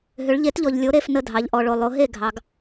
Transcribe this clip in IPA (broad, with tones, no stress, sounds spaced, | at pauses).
ɦ ʏ˨˦ ɭ ʎ e˨˦ t ʎ ɔ˨ ʎ lʲ o˨˦ ɾ e˨˦ f n ə˥˩ dʱ ɑ˨˦ ʎ ʔ ɔ˨ ɭ o˨ lˠ o˨˦ ɦ e˥˩ ɡʱ ɑ˨˦ ɡ